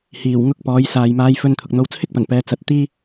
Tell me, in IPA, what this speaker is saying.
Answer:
hiː˨˩wŋʊ˥k̚pɔː˨˥j saː˨jmaː˧jfɵ˧n t̪ʰʊ˨k̚n̪o˧wt͡sʰɪ˥k̚pɐ˨˩n pɛː˧ t͡sɐ˧t̚ t̪iː˥

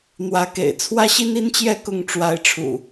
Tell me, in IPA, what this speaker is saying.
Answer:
n̪wä˨˦kḛ˨˩ɪ̯ t͡sʰwä˦ɕi˦ni˦nt͡ɕjɛ˥˨ kʊ˥˨ŋ ʈ͡ʂwa˨˦ɪ̯ʈ͡ʂʰṵ˨˩

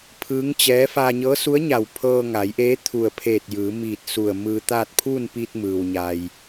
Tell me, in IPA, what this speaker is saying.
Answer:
pʰɯː˧˥ŋt͡ɕɛː˧˥ fa˧ɲɤː˧˥su˧˥ə̯ɲa˧˩w pʰɤː˧ŋa˩˧jʔeː˧˥ t̪ʰu˧˩ə̯pʰeː˧˩t̚ jɯː˩˧miː˧˩t̚ su˧˩ə̯mɯː˧t̪aː˥˨t̚ pʰuː˥˨npiː˧t̚ mɯː˩wɲa˩j

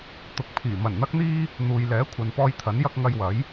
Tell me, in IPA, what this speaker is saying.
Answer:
t̪ʊ˨k̚pʰiː˨˩ mɐ˨˩nn̪ɐ˧k̚n̪iː˧ | n̪uː˨jlɛː˨˥ kʷʰɐ˨npɔː˧jt̪ʰɐ˨˥n jɐ˥k̚ ŋɐ˧jwɐ˨˥j

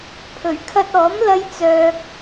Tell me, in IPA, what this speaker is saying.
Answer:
pʰɵ˨˩ɥkʰɐ˧t̚ɔː˨˥m lɐ˥j t͡sœː˧k̚

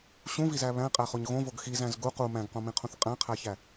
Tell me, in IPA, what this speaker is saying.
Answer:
ɕũvizæ βæ̃qʼæχoɲ ɣõvoɡ xizæ̃z ɡu qu mæ̃ɡqõmĩqʰũθ qʼæ̃qʰæçæ

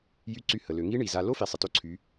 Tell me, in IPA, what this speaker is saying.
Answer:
jy˧˥ǀy˧hə˩ lø˩ŋi˧˥ ɳi˩za˧ lo˥fi˩ sˤɪ˩to˧ǀʰy˩˧

